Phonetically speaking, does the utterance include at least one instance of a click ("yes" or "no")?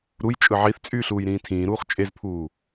no